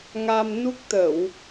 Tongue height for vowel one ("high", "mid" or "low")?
low